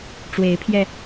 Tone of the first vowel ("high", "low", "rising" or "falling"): rising